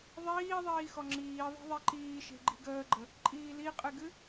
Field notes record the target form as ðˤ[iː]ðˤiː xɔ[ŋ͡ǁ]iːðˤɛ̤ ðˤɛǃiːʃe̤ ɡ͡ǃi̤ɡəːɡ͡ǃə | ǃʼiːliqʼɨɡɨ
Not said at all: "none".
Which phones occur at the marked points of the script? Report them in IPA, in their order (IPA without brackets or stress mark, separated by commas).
iː, ŋ͡ǁ